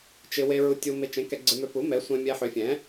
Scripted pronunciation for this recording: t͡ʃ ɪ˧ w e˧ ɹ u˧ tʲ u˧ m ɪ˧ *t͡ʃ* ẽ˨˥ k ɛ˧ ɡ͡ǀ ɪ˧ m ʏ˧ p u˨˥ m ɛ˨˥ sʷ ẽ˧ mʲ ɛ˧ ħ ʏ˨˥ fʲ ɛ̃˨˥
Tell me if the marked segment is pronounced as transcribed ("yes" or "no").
yes